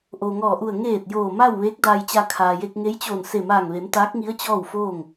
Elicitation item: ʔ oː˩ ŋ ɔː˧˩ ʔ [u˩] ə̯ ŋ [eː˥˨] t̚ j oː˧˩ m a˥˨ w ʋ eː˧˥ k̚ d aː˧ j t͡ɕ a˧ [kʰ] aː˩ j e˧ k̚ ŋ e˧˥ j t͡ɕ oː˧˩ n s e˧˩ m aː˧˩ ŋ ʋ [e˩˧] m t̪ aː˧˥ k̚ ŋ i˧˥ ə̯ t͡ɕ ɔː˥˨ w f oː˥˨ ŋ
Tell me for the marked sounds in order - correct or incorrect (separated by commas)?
incorrect, incorrect, correct, correct